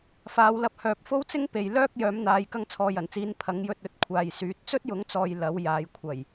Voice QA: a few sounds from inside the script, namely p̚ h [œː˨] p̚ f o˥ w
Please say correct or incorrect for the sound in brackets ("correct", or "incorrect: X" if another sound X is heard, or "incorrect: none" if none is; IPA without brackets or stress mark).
correct